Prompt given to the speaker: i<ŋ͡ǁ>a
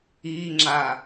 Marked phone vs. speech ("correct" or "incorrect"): correct